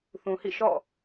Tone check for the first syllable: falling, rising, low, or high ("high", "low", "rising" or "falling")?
low